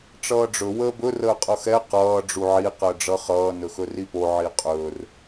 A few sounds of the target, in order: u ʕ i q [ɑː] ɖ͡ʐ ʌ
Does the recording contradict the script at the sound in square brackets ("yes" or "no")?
yes